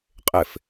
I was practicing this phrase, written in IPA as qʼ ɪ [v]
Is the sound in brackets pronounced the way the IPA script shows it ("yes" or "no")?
no